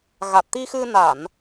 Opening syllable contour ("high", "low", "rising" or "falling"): low